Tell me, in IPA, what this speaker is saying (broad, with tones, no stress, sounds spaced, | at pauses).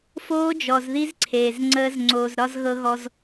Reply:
f oː˦ d͡ʒ ɔ˨ z ð i˦ z ǀʰ eː˨ z ŋ͡ǀ əː˦ z ŋ͡ǀ oː˨ z ɾ ɒ˦ z ɣ ɤ˦ ɣ ɔ˦ z